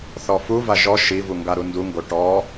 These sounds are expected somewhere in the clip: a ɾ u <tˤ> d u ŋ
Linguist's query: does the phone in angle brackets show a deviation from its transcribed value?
yes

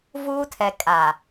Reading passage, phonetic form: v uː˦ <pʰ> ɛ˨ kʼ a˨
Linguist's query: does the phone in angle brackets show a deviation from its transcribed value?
yes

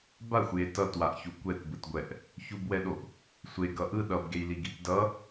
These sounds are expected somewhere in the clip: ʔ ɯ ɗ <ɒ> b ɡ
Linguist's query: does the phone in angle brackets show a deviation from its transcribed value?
yes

